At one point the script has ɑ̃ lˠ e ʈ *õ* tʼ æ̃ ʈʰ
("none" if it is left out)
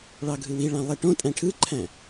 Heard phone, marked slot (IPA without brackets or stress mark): õ